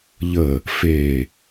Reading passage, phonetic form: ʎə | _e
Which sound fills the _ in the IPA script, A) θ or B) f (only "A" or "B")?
B